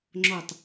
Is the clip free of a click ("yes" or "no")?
no